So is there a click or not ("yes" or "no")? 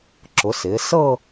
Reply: yes